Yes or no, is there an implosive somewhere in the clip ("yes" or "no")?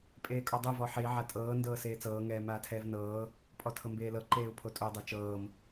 no